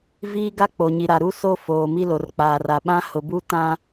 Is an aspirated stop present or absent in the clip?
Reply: absent